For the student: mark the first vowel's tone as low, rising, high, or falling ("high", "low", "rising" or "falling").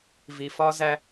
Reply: low